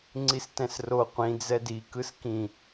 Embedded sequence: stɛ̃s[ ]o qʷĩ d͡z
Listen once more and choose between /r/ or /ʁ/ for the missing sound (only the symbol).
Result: r